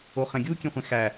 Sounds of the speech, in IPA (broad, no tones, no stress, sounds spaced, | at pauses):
o χ ɛ̃ ɡʲ uː kʲ ẽ χʷ ẽ x æ